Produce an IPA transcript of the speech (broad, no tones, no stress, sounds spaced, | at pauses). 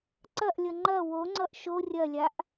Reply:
ǀ ɐ ʔ lʲ ʌ ŋ͡ǃ ɐ w o ŋ͡ǀ ʌ ʔ ʃ o rʲ ɐ lʲ a ʔ